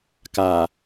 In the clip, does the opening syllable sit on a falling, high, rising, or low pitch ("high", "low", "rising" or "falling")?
low